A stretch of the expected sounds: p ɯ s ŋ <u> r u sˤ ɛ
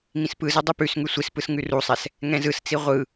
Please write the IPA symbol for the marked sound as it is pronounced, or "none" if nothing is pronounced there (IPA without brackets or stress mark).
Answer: ʉ